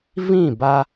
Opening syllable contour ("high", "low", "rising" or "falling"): falling